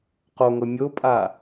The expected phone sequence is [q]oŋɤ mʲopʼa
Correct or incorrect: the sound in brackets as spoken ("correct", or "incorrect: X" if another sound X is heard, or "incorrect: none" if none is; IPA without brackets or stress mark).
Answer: correct